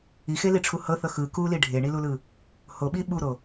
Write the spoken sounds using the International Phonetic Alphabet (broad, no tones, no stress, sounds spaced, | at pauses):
i x e l i ʈ͡ʂʰ u h ɤ θ ɤ x ɯ k u l i ɖʱ e ɳ i l u l ɯ | h o ɓ i ɓ u ɾ o